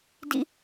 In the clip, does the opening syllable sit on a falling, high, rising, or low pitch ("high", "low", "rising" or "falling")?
high